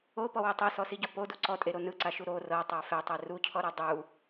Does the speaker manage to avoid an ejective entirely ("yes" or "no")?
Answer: no